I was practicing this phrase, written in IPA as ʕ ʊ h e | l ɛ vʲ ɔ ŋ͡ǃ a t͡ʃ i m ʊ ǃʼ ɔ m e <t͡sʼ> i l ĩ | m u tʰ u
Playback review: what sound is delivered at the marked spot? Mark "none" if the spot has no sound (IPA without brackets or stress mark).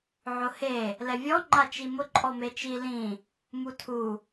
t͡ʃ